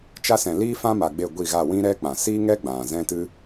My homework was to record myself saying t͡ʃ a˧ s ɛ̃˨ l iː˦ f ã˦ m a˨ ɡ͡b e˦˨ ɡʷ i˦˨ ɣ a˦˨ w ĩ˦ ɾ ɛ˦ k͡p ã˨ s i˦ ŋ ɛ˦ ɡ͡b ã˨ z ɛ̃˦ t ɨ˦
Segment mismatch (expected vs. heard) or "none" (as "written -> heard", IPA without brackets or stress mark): none